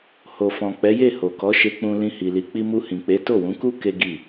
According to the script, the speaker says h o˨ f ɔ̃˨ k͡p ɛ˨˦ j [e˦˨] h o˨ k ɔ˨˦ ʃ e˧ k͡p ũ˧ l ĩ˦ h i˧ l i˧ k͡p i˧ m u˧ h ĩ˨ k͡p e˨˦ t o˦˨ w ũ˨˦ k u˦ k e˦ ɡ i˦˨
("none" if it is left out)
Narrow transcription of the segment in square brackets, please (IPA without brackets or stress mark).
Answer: e˦˨